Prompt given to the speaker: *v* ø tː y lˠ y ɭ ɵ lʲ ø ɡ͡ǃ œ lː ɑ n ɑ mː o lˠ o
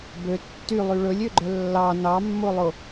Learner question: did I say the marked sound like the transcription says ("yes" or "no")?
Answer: no